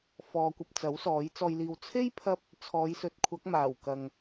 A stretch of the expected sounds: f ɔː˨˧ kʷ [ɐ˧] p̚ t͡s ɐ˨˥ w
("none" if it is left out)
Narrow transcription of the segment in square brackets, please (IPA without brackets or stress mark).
ɐ˨